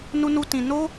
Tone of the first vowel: high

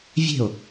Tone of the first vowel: falling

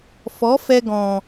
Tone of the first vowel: rising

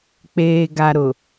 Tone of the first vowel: low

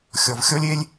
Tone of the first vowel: low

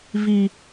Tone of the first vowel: low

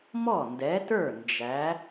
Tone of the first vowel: falling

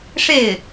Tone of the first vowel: falling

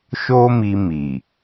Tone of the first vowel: high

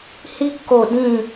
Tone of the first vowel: high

